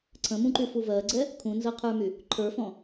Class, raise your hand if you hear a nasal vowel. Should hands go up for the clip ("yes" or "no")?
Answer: yes